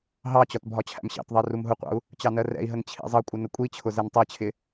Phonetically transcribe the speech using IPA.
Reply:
ɦɑt͡ɕɒt bʱɒt͡ɕʰæ̰mɕɑ̰tðˤɜ rumɦʊqʷɑ̰u̯ | t͡ɕɑnɜrɛ̰i̯ɦən t͡ɕʰḭzˤʌkʷʼɪ nəkʷʼit͡ɕʰʊ zɛntˤɜt͡ɕʰɪ

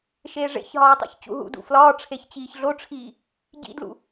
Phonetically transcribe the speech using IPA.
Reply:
ʃeːʐḛçɦɒː tˤḭçt͡ɕṵɦṵdṵ flɒːʈ͡ʂʰeç t͡ɕiːçɮoʈ͡ʂʰiː | ɟḭdlṵ

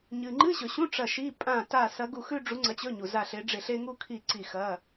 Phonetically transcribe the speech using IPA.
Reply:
ɲɨ˨ ŋ͡ǃɨ˧˥˧ɕɵ˨ɕũ˧˥˧ ʈ͡ʂɐ˦˨ʃi˧˥˧ pʼã˦˨ ta˦˨sɐ˧˥ɡu˦˨xʉ˥ ɖ͡ʐu˧˥ ŋ͡ǀɐ˧˥t͡ɕɵ˧˥˧ɲu˨za˦˨ ɬe˧˥ɖ͡ʐe˦˨ɬe˥ ŋu˥kʰi˦˨ ǀi˦˨xɐ˧˥˧

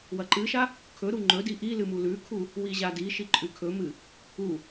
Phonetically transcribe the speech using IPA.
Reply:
wɐǃɨʃa | kʰɵɾu ŋ͡ǃɵdi ʔilɨ mulʉkʰu | wiʑadiʃi ǃʼʉkʰɵmɨ | u

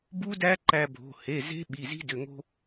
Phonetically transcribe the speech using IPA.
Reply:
bu˦˥dæ˦˥ ǃæ˧bʱo̤˩˧˩ he˩˧˩ ze̤˦˥ ɓi˩˧˩zi̤˦˥dʏ˩˧˩ ŋo̤˧

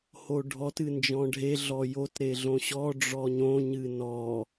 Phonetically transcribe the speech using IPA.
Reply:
hoɖʱɔt ɨnd͡ʒɔ̃ɖʱe ɮɔjot ɾeɮõɕɔ ɖ͡ʐɔɲõ ɲɨnɔ

